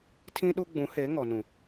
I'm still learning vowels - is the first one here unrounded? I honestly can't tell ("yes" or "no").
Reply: yes